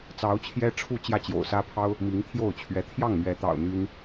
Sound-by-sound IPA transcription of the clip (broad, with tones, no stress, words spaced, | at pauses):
t͡sɑ˧˥ʊ̯t͡ɕʰjɛ˥ʈ͡ʂʰu˥˧ t͡ɕjä˥˩t͡ɕjo̰˨˩ʊ̯sä˥pʰɑ˥ʊ̯ | mi˧˥ŋt̪ʰjo˥˩ʊ̯t͡ɕʰɥɛ˧˥ t̪ʰjɑ˥˩ŋmɥɛ˧˥t̪ɑ̰˨˩ʊ̯ n̪y˥n